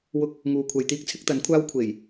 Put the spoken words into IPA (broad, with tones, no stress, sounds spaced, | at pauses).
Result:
w ʊ˧ k̚ | ŋ uː˨ kʷʰ ɐ˨ j t̪ iː˥ k̚ t͡sʰ ɪ˨˥ k̚ t̪ ɐ˨˥ n kʷʰ aː˥ w kʷʰ e˨˩ j